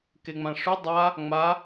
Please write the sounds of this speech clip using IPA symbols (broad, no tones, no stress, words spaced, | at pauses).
keŋ͡mãʂʏ dˤa | ŋ͡ma